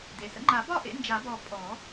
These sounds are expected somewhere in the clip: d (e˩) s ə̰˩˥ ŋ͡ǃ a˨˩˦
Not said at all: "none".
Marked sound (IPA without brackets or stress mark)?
e˩